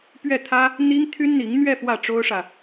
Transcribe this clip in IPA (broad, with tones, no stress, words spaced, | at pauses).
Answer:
pɥɛ˥˩t̪ʰä˥ | n̪i˥ŋt̪ʰy˥nn̪i˧˥ŋn̪ɥɛ˥˧ fwä˥˩ʈ͡ʂo˥ʊ̯ʂä˨